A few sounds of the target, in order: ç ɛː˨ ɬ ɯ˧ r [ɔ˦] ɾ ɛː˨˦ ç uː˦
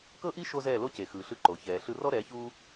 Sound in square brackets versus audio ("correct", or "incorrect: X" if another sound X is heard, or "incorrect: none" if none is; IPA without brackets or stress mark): correct